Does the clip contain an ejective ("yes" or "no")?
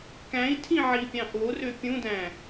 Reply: no